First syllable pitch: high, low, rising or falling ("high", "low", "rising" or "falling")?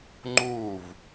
falling